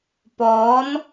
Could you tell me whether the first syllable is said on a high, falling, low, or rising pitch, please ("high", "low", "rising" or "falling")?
rising